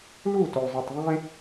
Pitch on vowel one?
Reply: falling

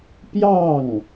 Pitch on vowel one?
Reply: falling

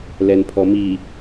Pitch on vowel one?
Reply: low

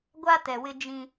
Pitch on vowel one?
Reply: high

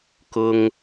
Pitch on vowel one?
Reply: high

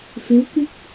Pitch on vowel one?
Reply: rising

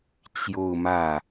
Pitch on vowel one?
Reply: falling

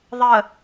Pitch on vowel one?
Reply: low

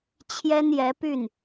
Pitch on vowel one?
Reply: high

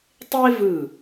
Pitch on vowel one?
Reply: high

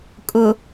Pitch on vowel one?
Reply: low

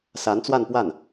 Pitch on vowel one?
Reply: rising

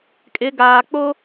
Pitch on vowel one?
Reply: rising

